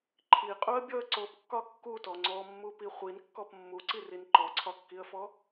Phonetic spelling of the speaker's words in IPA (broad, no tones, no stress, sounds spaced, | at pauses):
ǃʰ i qʼ u ə̯ bʲ ɔ ə̯ ǀ o p kː ɒ kː u t ɔ ŋ͡ǀ ɔ mː u p i χʷ i n kː ɔ p mː u ǀ i r i n ǃ ɔ ǀʰ ɒ kː i ə̯ f ɔ